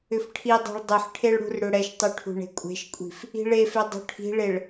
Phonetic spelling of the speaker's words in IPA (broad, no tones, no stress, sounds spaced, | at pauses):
ʏ f ʈʰ i dˤ ɛ̤ ɭ dˤ ʏ ħ ʈʰ e ɭ ɽ ṳ r ɽ ʏ ɽ ɛ ʃ tˤ y ʈʰ ṳ ɳ e̤ kʷʼ e̤ ʃ kʷʼ i̤ f | i̤ ɭ e f e dˤ ṳ ʈʰ i̤ ɭ e ɭ